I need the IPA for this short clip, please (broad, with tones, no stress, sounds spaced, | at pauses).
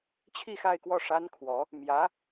t͡ɕʰ i˥˧ x a˥˧ ɪ̯ k w ɔ˥˩ ʂ a˥ n kʰ w ɔ˧˥ | m j ä˧˥